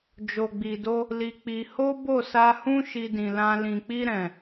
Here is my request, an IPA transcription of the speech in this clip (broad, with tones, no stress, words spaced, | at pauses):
d͡ʒo˨ɡ͡bi˨do˧ | li˧k͡pi˧ ho˦bo˦˨sa˧hũ˦ ʃi˧dĩ˨lã˧ lĩ˨k͡pi˧ɾɛ̃˨